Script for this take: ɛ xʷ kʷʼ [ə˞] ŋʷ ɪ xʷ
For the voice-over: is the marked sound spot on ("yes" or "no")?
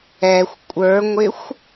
yes